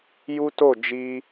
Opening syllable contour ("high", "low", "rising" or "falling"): high